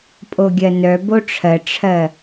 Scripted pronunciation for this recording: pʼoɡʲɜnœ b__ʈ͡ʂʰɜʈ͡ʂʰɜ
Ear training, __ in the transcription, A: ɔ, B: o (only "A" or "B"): B